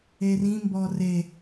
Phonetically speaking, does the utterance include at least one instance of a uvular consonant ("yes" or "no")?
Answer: no